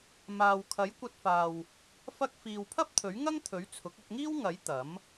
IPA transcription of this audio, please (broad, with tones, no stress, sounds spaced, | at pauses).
m aː˨ w kʰ ɐ˨˥ j kʷ ɐ˧ t̚ f aː˨ w | f ɐ˥ k̚ f iː˨ w pʰ ɐ˥ p̚ t̪ʰ ɵ˨˥ ɥ ŋ ɐ˥ ŋ t̪ʰ ɵ˨˥ ɥ t͡sʰ ʊ˨˥ k̚ ɐ˧ k̚ ŋ iː˥ w ŋ ɐ˨˥ j t̪ ɐ˨˥ m